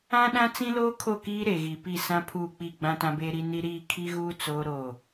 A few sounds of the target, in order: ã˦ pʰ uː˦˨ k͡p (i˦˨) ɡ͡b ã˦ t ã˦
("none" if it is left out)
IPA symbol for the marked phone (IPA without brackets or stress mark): i˦˨